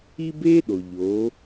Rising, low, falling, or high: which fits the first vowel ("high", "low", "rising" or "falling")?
high